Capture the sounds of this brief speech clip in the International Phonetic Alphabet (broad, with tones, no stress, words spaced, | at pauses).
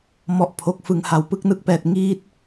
mɔ˨˩ʔpʰo˨˩k̚fɯ˨˩ŋha˨˩w pɯ˦˥k̚nɯ˦˥k̚pɛː˨˩t̚ ŋiː˦˥t̚